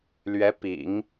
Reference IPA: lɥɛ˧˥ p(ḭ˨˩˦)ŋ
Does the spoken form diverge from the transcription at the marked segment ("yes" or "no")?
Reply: no